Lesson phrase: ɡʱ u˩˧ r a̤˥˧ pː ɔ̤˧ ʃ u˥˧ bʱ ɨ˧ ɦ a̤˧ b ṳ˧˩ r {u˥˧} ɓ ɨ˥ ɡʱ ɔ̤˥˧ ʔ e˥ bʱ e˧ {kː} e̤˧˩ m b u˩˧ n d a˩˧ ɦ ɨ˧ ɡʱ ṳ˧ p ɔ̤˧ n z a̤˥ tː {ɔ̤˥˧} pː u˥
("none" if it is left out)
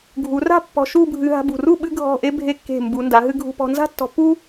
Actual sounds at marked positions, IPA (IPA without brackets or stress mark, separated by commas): u˥˧, kː, ɔ̤˧